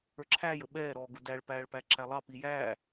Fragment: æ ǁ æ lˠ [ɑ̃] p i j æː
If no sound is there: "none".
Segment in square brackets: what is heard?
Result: ɑ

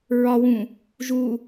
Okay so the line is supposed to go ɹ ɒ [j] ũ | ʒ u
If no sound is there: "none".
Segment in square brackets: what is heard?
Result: w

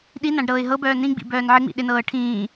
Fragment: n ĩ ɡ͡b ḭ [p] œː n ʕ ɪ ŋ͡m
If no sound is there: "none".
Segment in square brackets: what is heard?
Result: b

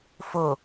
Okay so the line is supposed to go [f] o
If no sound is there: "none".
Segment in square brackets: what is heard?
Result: f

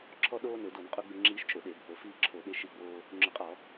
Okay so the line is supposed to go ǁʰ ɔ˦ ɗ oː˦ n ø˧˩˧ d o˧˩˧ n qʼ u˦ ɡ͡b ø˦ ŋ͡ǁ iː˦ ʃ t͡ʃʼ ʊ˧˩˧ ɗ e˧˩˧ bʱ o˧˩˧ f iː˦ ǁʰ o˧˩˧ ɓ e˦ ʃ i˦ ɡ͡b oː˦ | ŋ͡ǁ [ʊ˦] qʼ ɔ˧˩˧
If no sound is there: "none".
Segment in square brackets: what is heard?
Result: ʊ˧˩˧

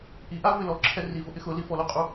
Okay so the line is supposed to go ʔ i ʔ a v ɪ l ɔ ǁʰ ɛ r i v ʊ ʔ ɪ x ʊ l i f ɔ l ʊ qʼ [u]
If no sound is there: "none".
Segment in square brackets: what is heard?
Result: u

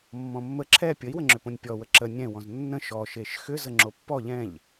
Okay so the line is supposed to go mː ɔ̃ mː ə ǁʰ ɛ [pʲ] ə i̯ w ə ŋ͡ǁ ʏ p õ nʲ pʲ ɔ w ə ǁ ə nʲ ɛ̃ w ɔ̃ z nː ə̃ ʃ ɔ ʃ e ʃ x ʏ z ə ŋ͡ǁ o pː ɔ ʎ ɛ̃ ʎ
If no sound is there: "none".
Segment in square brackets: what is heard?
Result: pʲ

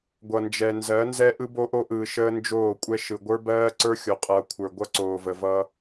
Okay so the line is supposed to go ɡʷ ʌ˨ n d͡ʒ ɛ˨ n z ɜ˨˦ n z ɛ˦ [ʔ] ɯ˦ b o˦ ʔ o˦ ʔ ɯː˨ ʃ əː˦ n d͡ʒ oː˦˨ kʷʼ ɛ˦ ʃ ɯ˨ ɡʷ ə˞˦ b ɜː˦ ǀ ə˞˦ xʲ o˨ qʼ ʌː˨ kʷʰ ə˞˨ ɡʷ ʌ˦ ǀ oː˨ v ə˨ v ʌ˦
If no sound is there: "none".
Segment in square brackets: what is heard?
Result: ʔ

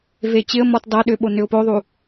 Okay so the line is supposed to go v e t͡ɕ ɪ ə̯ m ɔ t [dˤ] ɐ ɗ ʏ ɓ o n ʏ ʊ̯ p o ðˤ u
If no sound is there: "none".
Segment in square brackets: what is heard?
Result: dˤ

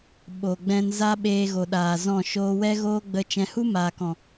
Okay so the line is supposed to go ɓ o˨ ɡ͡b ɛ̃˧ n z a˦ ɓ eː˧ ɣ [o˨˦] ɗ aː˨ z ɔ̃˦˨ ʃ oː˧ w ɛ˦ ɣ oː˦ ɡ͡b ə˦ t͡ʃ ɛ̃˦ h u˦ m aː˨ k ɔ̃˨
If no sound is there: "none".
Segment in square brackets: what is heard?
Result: o˨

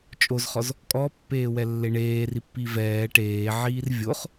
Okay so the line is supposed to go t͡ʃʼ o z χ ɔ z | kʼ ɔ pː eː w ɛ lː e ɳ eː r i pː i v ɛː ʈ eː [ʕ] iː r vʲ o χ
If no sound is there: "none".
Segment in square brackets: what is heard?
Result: ʕ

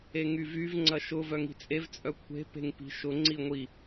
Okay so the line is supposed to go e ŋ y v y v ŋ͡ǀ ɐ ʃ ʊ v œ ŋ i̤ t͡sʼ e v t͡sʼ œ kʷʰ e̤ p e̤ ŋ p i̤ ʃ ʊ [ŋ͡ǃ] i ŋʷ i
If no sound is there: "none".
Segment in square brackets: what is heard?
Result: ŋ͡ǀ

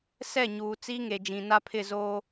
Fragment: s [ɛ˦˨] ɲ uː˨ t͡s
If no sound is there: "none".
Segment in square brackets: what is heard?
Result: ɛ˦˨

